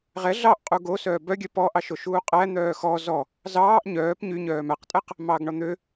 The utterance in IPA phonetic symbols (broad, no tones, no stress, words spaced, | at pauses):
ʁɛ ɮɑʔqʼu ɡo sœːbœɡʲœ pɔʔɑʃo ʃuːqʼæ n̪œːxɔ zɔ | zɑːʔ ɲœːp ɲyɲœː mæqtʼɛq | mɑɡɳɔn̪ø